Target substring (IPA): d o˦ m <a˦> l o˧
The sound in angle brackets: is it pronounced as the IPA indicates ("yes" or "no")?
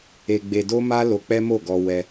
yes